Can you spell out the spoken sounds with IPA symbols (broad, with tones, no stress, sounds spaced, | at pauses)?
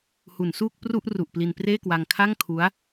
h u˩˦ n s uː˥˩ k̚ p r u˥˩ ʔ r u˨˩ ʔ p l i˧ n p r eː˥˩ k w a˧ ŋ kʰ a˥˩ ŋ kʰ u˦˥ a̯